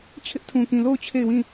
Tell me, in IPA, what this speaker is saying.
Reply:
t͡ɕʰ ɪ˦ ʔ tʰ ũ˨ k ĩ˨ l o˦˨ ʊ̯ t͡ɕʰ e˦˨ ɪ̯ w ĩ˦˨

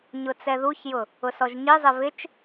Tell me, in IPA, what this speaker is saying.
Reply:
ɲ ʊ t͡s ɛ ð u ç j ʊ | ʊ s ɔ ʒ ɲ i zˤ ɪ v ɪ t͡ʃ

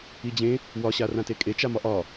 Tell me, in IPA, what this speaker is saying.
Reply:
i d͡ʑ ẽ | w ɒ ɕ a r ã t e kʼ e t͡ʃ a m ɒ ʔ ɒ

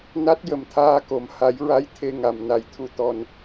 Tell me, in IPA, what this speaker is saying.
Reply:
n a˦˥ t̚ j ə˨˩ m t̪ʰ aː˧ k o˨˩˨ m h a˨˩˦ j ɹ a˧˥ j t̪ʰ e˧ ŋ a˨˩ m n a˨˩˨ j t̪ʰ u˨˩ t̪ ɔ˨˩ n

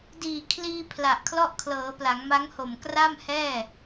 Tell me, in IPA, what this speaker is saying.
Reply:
d iː˨˩ kʰ l iː˧ pʰ l a˨˩ ʔ kʰ l ɔ˥˩ ʔ kʰ l ɤː˩˦ p l a˩˦ ŋ m a˦˥ ŋ h o˨˩ m k r a˥˩ m h ɛː˥˩

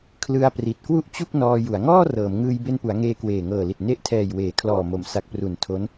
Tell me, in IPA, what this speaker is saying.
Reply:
kʰ l ɯ˧ a̯ p r i˨˩ t̚ k w u˥˩ ʔ t͡ɕ u˥˩ k̚ n ɔː˧ j u˩˦ a̯ ŋ ɔː˥˩ r ɤː˩˦ m ŋ ɯː˧ j b e˧ n p u˩˦ a̯ ŋ eː˧ k w eː˨˩ ŋ ɤː˨˩ l i˨˩ t̚ n e˦˥ ʔ tʰ ɛː˨˩ j w eː˩˦ kʰ l ɔː˨˩ m o˩˦ m s a˨˩ k̚ p r u˩˦ n tʰ o˦˥ n

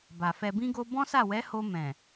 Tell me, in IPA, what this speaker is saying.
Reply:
b a˨ f ɛ˧ b ĩ˦ ɡ o˦ b ɔ̃˦ s a˦˨ w ɛ˨˦ h o˧ m ɛ̃˨

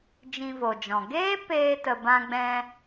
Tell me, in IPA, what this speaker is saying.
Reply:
d͡ʒ ĩ˧ v o˨ d͡ʒ ɔ̃˨ ɡ eː˦ p eː˧ t ə˨ b ã˧ ɡ͡b ɛ̃˧

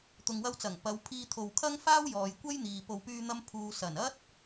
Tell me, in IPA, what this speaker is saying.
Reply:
t̪ ʊ˨ ŋ w ɐ˧ w t͡s ɐ˨˩ ŋ p ɐ˨˧ w pʰ iː˧ t̪ʰ o˨ w kʰ ɐ˥ ŋ f aː˥ w j ɔː˨ j kʷ ɐ˥ j n̪ iː˨ p o˨ w p yː˧ n̪ ɐ˧ m pʰ uː˨ s ɐ˨˩ n ɐ˥ t̚

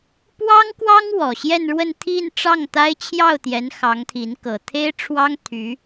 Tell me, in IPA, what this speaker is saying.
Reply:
p w ɑ˥ ŋ k w ɑ˥ ŋ w ɔ˨˩ ɕ j ɛ˥˧ n ɻ w ə˥˧ n t̪ʰ i˥˧ n ʈ͡ʂ ɑ˥˩ ŋ t̪ a˥ ɪ̯ t͡ɕʰ j ɑ˥˩ ʊ̯ t̪ j ɛ˧˥ n x ɑ˧˥ ŋ t̪ʰ i˧˥ n k ɤ˨˩ t̪ʰ e˥ ɪ̯ ʈ͡ʂʰ w ɑ˥ ŋ t̪ʰ y˧˥

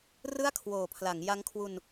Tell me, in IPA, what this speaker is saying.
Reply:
r ɯ˥˩ a̯ kʰ w oː˨˩ pʰ l a˩˦ ŋ j a˦˥ ŋ kʰ w u˧ n

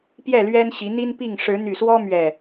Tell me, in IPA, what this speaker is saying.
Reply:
p j ɛ˥˨ l ɥ ɛ˦ n ɕ i˨˦ n̪ i˦ n p i˥˨ ŋ ʂ ɻ̩˨˦ n̪ y˨˩ s w ɔ˦ m ɥ ɛ˨˩

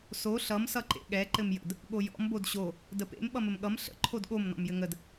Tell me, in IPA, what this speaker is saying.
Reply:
s o ɬ ʌ m s ʌ ǃ ḛ ɠ ɛ ǃ ɘ m j ə̰ d | ɠ o j ɔ̰ m b o d ɕ o | d ə p ḛ m ɓ ʌ m ə m ɠ ʌ m ɬ ə̰ ǃʰ o d ɠ o m n ɔ̰ m j ɘ ŋ ə d

